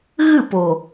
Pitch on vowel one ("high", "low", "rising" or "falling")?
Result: falling